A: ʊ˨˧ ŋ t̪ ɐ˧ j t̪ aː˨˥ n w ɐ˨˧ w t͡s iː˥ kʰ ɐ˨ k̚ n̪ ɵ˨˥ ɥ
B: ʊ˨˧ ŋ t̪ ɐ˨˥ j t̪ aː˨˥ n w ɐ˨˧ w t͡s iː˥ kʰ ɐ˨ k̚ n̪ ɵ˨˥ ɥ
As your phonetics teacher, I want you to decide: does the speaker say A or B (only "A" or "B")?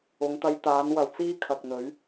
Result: A